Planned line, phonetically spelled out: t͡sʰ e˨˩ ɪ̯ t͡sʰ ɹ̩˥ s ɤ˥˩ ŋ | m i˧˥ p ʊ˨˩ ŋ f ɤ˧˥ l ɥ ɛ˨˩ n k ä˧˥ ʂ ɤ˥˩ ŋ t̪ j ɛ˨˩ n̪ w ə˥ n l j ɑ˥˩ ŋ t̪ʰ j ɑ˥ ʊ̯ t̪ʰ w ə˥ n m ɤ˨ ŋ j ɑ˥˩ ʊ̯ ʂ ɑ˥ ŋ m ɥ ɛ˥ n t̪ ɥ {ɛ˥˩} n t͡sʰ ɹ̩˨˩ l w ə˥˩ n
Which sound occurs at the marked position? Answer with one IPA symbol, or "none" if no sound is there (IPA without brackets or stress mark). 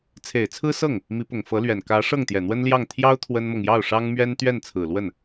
ɛ˥˩